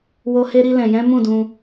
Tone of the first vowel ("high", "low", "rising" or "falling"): high